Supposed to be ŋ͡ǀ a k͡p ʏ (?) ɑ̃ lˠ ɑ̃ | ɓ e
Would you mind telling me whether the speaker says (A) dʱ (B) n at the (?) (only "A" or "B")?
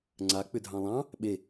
A